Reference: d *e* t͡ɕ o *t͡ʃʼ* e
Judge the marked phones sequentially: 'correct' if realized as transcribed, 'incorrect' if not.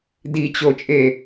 incorrect: i, correct

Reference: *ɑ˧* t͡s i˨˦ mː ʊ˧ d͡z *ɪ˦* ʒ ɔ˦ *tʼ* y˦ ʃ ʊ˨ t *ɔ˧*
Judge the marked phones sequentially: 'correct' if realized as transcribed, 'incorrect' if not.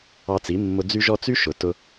correct, incorrect: y˦, incorrect: t͡s, incorrect: ʊ˧

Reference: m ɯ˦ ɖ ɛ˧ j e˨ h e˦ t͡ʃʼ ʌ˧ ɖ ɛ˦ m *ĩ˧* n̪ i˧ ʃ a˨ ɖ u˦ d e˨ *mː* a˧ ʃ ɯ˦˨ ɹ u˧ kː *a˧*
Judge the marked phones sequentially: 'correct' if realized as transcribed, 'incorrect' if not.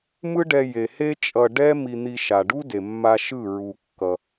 incorrect: i˧, correct, incorrect: ʌ˧

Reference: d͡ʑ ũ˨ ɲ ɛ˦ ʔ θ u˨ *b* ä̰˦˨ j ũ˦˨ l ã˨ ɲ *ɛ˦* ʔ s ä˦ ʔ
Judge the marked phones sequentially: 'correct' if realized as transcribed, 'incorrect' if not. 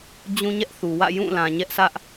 incorrect: w, correct

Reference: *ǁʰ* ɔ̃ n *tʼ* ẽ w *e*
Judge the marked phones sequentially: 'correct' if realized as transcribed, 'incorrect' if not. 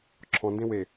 correct, incorrect: d, correct

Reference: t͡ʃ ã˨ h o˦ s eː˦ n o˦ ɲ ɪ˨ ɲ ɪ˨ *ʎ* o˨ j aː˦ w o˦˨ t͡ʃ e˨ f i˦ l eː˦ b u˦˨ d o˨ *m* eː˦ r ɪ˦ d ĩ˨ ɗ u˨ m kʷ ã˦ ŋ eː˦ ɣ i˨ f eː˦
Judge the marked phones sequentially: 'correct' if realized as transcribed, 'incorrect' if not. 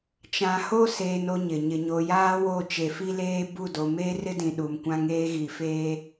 incorrect: ɲ, correct

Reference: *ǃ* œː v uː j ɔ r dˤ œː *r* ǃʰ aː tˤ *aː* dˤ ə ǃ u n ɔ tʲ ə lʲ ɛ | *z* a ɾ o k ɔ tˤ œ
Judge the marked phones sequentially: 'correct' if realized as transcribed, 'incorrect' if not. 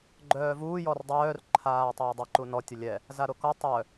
incorrect: ɡ͡ǃ, correct, incorrect: əː, correct

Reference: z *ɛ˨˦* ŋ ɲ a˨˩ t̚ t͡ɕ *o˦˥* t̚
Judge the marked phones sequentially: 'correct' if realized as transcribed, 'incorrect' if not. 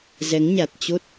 correct, correct

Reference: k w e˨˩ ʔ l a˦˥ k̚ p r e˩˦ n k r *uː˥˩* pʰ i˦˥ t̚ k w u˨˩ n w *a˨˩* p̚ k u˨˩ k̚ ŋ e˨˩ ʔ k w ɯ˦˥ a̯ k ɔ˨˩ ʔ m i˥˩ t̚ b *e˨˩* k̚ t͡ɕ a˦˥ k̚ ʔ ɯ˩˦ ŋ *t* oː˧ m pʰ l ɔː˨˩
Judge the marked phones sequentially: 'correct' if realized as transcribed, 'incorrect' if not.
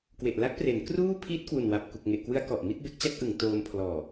correct, correct, incorrect: e˦˥, correct

